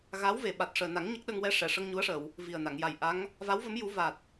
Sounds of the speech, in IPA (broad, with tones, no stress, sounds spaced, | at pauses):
ɣ a˧˥ w v e˨˩ ɓ a˨˩ t̚ ʂ əː˨˩ n a˨˩˦ ŋ ɲ ə˦˥ k̚ ɗ ə˧ ŋ w ɛ˧ ʂ ɛ˨˩˨ ʂ ə˧ ŋ ɲ u˧˥ ə̯ ʂ ə˨˩˨ w | v i˨˩ ə̯ n a˨˩˨ ŋ j a˨˩ j ʔ a˧˥ ŋ | v a˧˥ w v ə˧˥ m j u˨˩˦ v a˨˩ t̚